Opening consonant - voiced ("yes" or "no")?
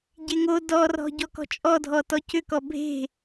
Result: yes